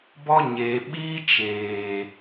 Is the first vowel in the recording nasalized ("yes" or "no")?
no